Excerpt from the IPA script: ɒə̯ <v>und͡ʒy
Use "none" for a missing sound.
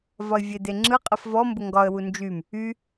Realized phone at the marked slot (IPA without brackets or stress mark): w